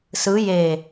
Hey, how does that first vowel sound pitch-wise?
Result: rising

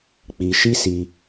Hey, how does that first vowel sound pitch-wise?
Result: low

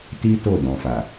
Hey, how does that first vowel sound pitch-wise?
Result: high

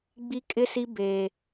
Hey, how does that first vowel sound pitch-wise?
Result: high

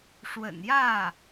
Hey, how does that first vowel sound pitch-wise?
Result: low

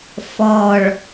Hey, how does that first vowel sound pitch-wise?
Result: low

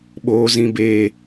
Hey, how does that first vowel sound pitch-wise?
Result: high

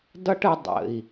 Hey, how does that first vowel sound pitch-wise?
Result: high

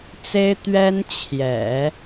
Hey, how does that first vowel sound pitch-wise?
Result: high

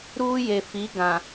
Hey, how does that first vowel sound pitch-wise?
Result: high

